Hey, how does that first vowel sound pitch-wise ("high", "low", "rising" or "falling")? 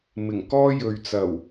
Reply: low